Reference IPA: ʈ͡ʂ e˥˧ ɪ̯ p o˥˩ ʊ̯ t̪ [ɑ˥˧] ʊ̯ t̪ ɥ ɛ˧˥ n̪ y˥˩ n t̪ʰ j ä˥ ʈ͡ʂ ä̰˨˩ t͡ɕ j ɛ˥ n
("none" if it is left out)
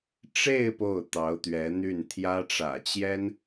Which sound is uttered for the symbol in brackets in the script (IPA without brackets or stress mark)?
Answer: ɑ˧˥